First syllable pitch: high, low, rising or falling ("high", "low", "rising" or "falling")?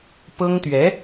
high